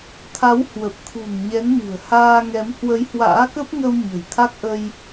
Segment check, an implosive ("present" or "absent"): absent